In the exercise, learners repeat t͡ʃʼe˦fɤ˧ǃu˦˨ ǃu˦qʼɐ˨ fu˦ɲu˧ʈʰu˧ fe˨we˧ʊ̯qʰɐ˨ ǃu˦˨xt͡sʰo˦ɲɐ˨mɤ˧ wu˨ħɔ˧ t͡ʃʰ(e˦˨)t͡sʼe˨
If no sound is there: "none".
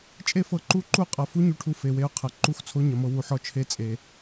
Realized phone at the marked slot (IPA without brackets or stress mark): e˦˨